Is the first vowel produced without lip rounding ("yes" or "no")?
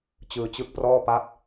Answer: yes